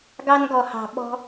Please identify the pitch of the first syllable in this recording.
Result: high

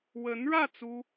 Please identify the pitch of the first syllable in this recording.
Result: rising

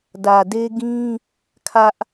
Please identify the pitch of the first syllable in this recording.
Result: low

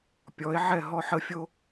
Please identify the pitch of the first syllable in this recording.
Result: rising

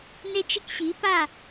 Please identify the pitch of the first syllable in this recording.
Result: high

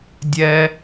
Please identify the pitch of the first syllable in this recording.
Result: high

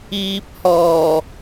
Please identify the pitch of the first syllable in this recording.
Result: low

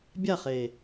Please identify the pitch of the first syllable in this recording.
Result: falling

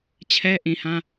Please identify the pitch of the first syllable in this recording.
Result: high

